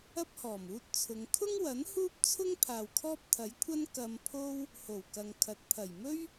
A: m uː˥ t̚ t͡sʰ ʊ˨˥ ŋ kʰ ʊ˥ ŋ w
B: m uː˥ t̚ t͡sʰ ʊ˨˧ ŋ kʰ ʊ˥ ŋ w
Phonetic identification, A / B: B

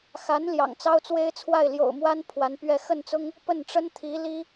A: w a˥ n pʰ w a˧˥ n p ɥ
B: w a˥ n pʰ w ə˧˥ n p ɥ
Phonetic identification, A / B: A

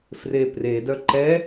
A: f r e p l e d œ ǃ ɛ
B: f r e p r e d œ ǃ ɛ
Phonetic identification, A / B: B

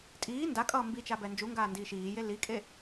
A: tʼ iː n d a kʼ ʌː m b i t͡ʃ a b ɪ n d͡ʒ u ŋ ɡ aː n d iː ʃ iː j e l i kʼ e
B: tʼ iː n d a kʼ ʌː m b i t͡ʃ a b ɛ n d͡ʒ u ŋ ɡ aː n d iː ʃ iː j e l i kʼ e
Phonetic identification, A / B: B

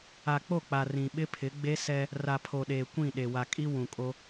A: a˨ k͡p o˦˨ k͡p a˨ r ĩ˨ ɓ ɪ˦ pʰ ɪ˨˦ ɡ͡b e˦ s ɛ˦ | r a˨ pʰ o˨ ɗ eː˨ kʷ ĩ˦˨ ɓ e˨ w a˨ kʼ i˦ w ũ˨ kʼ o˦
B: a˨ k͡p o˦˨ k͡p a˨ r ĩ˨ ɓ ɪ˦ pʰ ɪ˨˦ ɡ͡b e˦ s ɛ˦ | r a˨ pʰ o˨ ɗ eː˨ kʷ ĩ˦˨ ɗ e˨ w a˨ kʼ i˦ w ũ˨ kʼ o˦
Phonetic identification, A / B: B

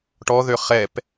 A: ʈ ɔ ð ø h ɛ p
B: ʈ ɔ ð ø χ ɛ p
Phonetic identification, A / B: B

